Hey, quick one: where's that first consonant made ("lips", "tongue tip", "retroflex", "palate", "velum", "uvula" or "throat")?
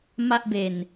lips